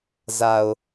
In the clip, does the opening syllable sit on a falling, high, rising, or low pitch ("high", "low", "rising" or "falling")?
low